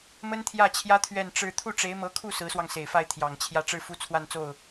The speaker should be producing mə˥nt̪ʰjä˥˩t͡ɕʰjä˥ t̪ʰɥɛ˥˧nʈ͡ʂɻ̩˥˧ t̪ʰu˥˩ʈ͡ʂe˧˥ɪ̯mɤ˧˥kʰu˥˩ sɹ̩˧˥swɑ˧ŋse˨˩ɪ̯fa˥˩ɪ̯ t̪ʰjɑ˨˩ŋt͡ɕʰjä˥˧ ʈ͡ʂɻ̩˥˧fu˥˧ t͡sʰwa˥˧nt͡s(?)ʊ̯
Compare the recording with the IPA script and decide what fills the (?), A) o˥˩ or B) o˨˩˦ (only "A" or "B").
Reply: A